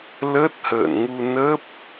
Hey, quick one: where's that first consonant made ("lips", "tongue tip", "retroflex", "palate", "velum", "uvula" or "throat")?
tongue tip